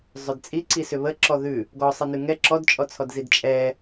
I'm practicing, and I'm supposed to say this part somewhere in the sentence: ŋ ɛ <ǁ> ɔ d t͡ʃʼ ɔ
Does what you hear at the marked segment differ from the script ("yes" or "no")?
no